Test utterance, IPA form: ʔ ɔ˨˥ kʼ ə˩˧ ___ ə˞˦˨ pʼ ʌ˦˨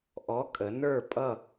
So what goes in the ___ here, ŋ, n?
n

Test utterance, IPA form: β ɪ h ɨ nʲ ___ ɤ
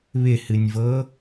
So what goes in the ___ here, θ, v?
v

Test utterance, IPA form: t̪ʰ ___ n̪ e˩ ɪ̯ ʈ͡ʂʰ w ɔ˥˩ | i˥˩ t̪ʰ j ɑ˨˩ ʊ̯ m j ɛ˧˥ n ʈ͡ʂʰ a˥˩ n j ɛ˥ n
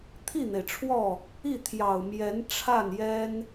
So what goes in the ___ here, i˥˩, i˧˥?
i˥˩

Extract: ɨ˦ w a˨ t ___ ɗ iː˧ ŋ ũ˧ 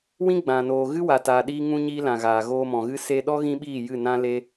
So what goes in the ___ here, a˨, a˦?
a˨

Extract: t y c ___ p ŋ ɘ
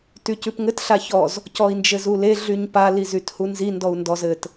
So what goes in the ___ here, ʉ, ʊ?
ʉ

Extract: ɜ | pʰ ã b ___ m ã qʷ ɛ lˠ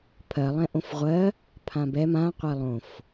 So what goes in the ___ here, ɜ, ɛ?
ɛ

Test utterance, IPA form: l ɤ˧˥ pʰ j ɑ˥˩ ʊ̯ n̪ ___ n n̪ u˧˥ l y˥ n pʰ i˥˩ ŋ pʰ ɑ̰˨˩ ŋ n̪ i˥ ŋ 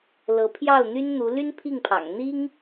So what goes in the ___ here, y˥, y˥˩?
y˥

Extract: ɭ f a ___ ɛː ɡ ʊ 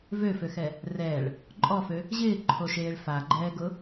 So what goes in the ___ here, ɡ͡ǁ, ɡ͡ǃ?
ɡ͡ǃ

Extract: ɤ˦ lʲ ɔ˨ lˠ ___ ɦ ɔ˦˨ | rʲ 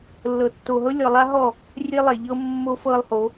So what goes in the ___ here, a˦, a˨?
a˦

